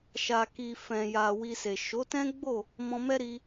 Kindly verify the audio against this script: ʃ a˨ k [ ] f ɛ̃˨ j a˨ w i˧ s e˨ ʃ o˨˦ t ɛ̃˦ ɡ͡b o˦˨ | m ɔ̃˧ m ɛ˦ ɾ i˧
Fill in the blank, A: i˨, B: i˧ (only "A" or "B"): A